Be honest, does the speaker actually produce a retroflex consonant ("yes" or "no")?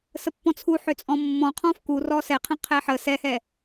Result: no